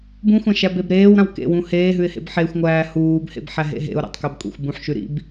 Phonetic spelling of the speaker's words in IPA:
b ũ xʷ ã ʃ æ b e b ɾ eː w ɾ ã w k ḛ w ũ h eː ɦ ʉ ɪ̯ h ḛ b ħ e xʷ ŋʷ æː h uː b h ḛ b ħ æ ɦ ḛ ɦ ḛ ʊ̯ ɾ ḛ tˤ k æ b kʷʼ ḛ xʷ b ũ ħ ʃ ʉ ɾ ḭ b

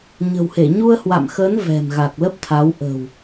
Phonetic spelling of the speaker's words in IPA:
ɲ ə̤˨˩ w h e˧˩ ɲ u˧ ə̯ h w a̰˧˨ m x əː˨˦ n v ɛ̤˨˩ m ɣ a˨˩ k̚ l ə˦˥ p̚ t̪ʰ a˨˦ w ʔ ə̤˨˩ w

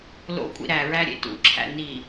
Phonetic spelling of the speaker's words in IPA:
l o̰ kʷʼ ḭ ɾ æ ɹ æ ɾʲ ḛ t ṵ ǁʰ æ̰ n i

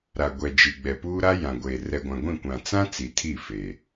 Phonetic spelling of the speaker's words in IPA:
ɾ a˨ ɡʷ ɛ˨ d͡ʒ i˨ ɡ͡b ɛ˨ p uː˦ ɾ a˦ j ã˨ ɡʷ e˨ r ɛ˨ ɡʷ ã˨ ɡʷ ĩ˦˨ kʷ ã˨ t͡s ã˦ t͡s i˨ tʰ i˦˨ f e˨

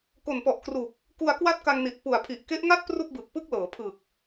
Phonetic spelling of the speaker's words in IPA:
k o˨˩ n p ɔ˨˩ ʔ k r uː˨˩ k̚ | k u˧ a̯ k w a˥˩ t̚ k a˧ ŋ n i˨˩ t̚ p u˨˩ a̯ pʰ i˨˩ ʔ k e˦˥ ʔ ŋ a˥˩ t̚ p r u˥˩ k̚ b ɯ˨˩ k̚ p ɯ˥˩ k̚ l ɤː˩˦ pʰ ɯː˨˩ k̚

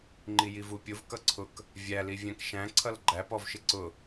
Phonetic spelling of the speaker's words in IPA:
ŋ͡ǃ i j i v u pʲ ʊ v k ʌ ǀʰ ʊ k | vʲ æ l i vʲ æ̃ k ʃ æ̃ ǀʰ ʌ l ɡ͡ǃ æ p ɔ v ʃ ɪ ǀ ʊ

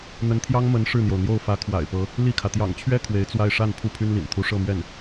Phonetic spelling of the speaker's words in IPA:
n̪ ə˧˥ n t̪ʰ j ɑ˥ ŋ m ə˧˥ n ʂ ɻ̩˥˩ n̪ j o˩ ʊ̯ n̪ j o˥˩ ʊ̯ f ä˧˥ kʰ w a̰˨˩ ɪ̯ p ɤ˧˥ | l i˥˩ kʰ ä˩ t̪ j ɑ̰˨˩ ŋ t͡ɕʰ ɥ ɛ˥ kʰ w e˧˥ ɪ̯ t͡s w a˥˧ ɪ̯ ʂ a˥˧ n pʰ u˥˩ pʰ y˥ n l ḭ˨˩ n t̪ʰ u˧˥ ʂ ɤ˥˧ m ɥ ɛ˥˩ n

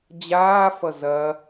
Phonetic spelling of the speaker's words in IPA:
d͡ʑ aː f ʌ z ɐ

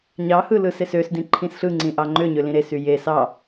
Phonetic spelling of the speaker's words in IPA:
ɲ ɑ h ɯ l ɯ s e s ø s d ĩ ǃʰ ĩ s ɬ ɯ ŋ͡ǀ ĩ ʔ ɑ ŋ͡ǃ ø ɲ ø l ĩ ɾ e s y j e s ɑ

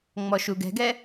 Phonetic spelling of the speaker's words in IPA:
ŋ͡m ɔ ʃ u ɡ ɛ̤ ɡ ɛ

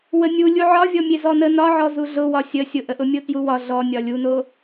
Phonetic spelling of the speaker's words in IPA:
w ə nʲ u lʲ u ʕ ɒ vʲ ɔ mʲ e z ɔ n ə n ɒ ʕ ɔ z u ɮ ʊ w ɒ sʲ ə sʲ ʊ ʔ ə ʔ ʊ mʲ o t j u w ɒ ɮ ɔ nʲ ɒ lʲ u n o

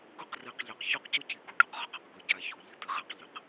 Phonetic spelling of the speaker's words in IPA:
ɡ ʊ˦˨ q r i˨ q ʎ e˨ q ç u˦ q c ʊ˦ c i˨ ɡ u˨ ɖ u˦ q ʁ ʊ˨ q ɪ˨ q ɡ ʊ˨ ɟ a˨ ç u˨ ʎ i˦ t̪ ɪ˨ ʁ ɛ˦ q ʎ ɪ˨ q

